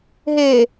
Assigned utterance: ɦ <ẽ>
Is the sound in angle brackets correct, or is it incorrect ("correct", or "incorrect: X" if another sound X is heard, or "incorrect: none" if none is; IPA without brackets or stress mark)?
incorrect: e